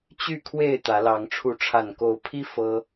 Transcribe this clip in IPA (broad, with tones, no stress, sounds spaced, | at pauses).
t͡ɕ y˥˨ kʰ w e˥˨ ɪ̯ t̪ ä˨˦ l ɑ˨˦ ŋ ʈ͡ʂʰ u˨˦ ʈ͡ʂʰ a˨˩ n k o˨˦ ʊ̯ pʰ i˦ f ɤ˦